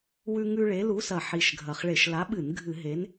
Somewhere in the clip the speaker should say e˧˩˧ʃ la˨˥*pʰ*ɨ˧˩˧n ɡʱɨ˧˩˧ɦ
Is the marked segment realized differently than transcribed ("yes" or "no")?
yes